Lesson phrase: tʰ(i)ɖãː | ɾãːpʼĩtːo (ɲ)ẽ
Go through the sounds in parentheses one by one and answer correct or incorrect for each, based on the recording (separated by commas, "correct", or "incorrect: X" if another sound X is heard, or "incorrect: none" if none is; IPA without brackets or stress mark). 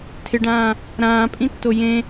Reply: incorrect: ɪ, incorrect: j